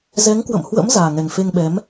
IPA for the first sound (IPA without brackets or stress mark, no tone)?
z